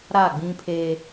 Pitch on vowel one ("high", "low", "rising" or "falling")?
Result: falling